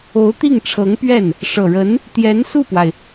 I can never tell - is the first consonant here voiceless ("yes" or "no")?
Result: yes